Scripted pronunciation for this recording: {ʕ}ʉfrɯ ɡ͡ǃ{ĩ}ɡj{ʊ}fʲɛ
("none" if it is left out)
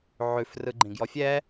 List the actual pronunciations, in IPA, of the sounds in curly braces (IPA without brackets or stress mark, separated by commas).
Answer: ʕ, ĩ, ɔ